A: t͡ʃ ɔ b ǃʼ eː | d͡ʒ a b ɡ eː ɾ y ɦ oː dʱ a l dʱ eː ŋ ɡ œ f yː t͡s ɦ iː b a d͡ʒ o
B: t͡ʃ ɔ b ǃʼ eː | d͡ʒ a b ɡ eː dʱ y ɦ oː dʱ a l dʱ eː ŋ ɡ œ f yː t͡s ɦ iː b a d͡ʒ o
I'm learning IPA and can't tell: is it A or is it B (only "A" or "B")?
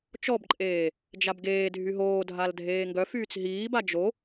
B